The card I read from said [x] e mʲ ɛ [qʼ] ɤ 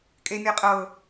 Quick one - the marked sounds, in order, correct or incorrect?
incorrect, correct

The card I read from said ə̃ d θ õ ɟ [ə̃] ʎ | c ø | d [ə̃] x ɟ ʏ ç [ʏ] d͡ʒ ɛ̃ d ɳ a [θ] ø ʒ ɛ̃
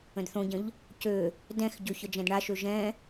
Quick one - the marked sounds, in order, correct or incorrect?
correct, incorrect, incorrect, incorrect

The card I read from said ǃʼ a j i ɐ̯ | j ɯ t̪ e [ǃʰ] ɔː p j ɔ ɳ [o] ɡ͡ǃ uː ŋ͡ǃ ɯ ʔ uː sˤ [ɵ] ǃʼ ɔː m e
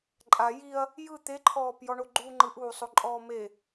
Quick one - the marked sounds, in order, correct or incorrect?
correct, correct, incorrect

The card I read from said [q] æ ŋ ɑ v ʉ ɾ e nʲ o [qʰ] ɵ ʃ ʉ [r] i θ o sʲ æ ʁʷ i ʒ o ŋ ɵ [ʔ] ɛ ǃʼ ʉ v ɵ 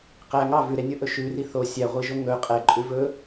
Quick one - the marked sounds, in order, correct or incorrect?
correct, incorrect, correct, incorrect

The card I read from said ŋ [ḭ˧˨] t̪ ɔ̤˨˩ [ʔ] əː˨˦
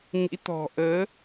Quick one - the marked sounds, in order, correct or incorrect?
incorrect, correct

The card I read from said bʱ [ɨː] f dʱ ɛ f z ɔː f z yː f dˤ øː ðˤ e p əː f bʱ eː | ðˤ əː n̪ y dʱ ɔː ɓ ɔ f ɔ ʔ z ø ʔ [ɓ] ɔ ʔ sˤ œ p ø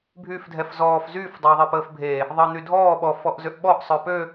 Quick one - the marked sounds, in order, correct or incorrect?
incorrect, correct

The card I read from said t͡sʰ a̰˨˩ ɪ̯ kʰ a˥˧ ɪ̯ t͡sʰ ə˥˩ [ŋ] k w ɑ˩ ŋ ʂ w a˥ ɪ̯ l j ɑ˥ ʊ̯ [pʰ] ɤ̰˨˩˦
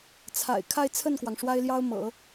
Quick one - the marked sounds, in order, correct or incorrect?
incorrect, incorrect

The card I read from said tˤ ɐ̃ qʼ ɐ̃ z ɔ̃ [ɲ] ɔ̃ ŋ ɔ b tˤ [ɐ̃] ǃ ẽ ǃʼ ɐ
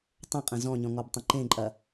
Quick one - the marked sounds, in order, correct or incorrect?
correct, correct

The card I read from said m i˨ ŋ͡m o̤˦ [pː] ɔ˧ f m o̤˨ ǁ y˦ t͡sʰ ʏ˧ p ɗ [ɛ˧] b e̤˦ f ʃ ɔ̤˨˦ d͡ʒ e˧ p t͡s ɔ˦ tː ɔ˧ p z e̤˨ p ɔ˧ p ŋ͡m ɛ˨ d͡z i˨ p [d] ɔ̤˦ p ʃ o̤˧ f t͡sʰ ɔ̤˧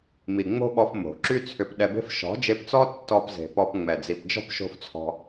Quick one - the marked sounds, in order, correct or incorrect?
incorrect, correct, incorrect

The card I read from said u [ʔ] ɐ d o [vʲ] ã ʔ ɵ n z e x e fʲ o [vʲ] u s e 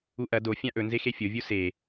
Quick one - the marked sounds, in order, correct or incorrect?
correct, incorrect, correct

